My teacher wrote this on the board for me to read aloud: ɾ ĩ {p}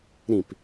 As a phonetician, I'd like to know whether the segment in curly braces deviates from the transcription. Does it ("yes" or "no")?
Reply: no